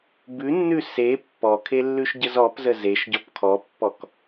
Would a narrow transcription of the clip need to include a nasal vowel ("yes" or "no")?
no